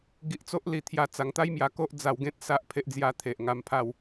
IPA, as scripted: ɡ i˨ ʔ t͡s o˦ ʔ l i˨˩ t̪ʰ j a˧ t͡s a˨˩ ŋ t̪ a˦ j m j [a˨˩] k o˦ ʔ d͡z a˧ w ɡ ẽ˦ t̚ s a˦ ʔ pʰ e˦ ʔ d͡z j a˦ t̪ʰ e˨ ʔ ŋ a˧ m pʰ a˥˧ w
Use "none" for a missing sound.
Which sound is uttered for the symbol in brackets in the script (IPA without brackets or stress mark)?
a˨˩